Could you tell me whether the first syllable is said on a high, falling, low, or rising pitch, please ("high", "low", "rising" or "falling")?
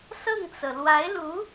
falling